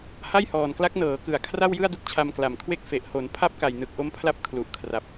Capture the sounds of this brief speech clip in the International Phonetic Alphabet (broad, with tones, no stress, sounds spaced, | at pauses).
h a˥˩ j h ɔː˨˩ n k l a˦˥ k̚ n ɤː˩˦ k ɯ˩˦ a̯ kʰ r a˥˩ w j ɯ˥˩ a̯ d u˦˥ k̚ t͡ɕʰ a˧ m k l a˨˩ m kʰ w e˥˩ k̚ f e˨˩ ʔ h o˩˦ n pʰ a˥˩ p̚ k a˨˩ j n ɯ˨˩ k̚ ʔ o˦˥ m pʰ l a˦˥ p̚ kʰ l u˨˩ ʔ kʰ r a˨˩ p̚